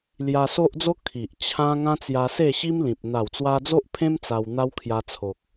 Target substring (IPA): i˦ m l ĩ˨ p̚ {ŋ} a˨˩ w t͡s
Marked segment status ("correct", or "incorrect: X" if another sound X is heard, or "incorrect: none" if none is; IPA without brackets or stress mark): incorrect: n̪